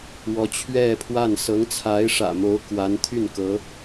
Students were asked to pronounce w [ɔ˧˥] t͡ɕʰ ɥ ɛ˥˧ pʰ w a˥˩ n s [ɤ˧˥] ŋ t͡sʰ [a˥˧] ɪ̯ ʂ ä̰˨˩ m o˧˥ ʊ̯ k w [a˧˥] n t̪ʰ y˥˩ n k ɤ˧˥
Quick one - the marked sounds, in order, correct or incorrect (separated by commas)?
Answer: correct, correct, incorrect, correct